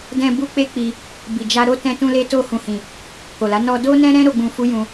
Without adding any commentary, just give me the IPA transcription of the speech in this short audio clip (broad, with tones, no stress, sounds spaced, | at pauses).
d ɛ̃˧ b u˧ k͡p e˦ k͡p i˧ | b i˨ d͡ʒ a˧ ɾ o˦ t ɛ̃˧ t ũ˧ l e˧ t o˧ h ũ˨ h ĩ˨ | k o˨ l a˨˦ n ɔ˧ d o˦ n ɛ̃˦ ɾ ɛ̃˦ ɾ o˦ ɡ͡b ũ˧ f u˦ j ũ˧